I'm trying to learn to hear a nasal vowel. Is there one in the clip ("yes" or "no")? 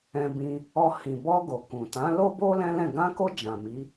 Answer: yes